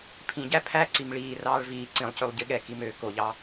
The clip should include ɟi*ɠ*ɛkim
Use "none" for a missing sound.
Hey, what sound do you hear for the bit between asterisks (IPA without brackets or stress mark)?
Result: ɠ